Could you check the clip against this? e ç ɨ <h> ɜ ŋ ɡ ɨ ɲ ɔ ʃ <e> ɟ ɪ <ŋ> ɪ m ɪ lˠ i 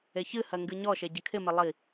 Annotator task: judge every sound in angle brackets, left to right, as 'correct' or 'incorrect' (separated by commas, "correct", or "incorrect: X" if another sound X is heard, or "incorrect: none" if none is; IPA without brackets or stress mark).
correct, correct, incorrect: kʰ